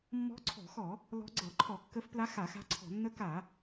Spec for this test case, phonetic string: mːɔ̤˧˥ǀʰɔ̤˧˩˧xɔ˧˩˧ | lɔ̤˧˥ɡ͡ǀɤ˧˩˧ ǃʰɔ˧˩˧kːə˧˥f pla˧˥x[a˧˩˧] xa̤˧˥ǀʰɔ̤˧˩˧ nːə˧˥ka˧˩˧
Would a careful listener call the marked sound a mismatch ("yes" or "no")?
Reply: no